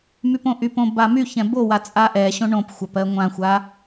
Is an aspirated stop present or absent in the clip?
absent